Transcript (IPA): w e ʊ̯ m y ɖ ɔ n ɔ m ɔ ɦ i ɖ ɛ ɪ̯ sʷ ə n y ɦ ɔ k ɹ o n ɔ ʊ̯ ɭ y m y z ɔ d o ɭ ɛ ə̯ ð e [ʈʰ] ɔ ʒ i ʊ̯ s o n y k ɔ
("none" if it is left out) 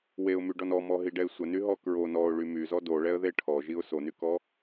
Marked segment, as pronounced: ʈʰ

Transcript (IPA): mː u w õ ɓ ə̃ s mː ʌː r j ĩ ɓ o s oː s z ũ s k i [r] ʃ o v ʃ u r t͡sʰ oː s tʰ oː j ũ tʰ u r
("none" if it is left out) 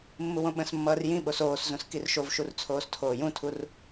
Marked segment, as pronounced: r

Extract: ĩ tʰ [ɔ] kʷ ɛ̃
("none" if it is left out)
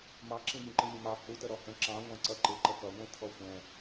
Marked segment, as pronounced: ɔ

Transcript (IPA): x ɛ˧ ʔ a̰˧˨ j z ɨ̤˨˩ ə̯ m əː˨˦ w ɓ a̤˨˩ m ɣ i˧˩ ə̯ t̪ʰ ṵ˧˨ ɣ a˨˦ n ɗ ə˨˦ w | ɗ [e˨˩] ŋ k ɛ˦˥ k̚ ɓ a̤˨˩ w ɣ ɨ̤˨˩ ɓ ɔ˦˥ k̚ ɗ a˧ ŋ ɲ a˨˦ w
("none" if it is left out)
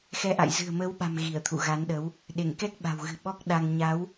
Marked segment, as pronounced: e˧˩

